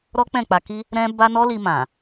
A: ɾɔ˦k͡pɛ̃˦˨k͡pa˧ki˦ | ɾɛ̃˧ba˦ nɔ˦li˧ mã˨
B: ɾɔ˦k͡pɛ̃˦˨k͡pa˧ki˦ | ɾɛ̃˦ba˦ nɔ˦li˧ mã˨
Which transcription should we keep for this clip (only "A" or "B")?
B